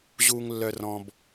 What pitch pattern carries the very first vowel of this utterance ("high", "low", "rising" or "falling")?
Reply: high